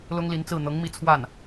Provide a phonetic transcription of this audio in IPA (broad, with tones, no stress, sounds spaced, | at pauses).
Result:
l ʊ˥ ŋ l i˧˥ n t͡s ɹ̩˥˩ n̪ ɤ˧˥ ŋ m i˧˥ t͡sʰ w a˥˩ n